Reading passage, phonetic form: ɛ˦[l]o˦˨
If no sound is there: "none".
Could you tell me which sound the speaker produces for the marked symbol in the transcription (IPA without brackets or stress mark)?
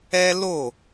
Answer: l